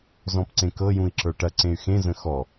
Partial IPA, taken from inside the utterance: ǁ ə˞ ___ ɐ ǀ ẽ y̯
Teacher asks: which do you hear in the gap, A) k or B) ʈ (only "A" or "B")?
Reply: B